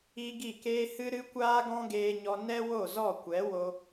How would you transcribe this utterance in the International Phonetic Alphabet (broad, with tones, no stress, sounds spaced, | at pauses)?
i˦ ɡ i˦˨ k eː˦ h ɨ˦ ɾ ɨ˦ kʷ aː˦ ɡ ɔ̃˦ ɡ eː˧ ɲ ɔ˧ n ɛ˦ w o˦˨ z ɔ˦˨ kʷ ɛ˨˦ w o˧